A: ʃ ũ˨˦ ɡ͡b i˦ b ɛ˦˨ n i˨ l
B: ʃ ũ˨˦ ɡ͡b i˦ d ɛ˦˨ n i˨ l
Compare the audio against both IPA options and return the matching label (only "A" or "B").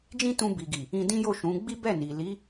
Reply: A